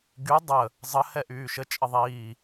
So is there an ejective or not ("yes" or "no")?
yes